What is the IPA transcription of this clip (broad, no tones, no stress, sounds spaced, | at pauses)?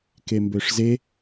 k e m b ø ʂ z e